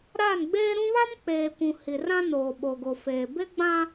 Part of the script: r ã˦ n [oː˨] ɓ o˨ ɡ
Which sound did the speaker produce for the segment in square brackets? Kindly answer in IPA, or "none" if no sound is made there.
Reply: oː˨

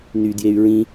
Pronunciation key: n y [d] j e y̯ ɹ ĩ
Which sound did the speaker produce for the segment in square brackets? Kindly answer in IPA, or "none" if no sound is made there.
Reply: d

